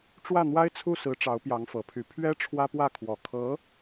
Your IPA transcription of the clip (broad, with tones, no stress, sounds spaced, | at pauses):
ʈ͡ʂ w ä˥˩ n̪ w a˥ ɪ̯ t͡sʰ u˥˩ s ɹ̩˧˥ ʈ͡ʂ ɑ˧˥ ʊ̯ p j ɑ˧˥ ŋ f ɤ˨˩ pʰ y˧˥ pʰ ɥ ɛ˥ ʈ͡ʂʰ w ä˥ p w ä˥˩ kʰ w ɔ˨˩ kʰ ɤ˧˥